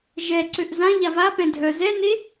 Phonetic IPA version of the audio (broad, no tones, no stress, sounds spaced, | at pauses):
ʒ ɛ ǀ ø ʔ z ã ʎ a v a p ɛ̃ dʱ œ z ɛ n e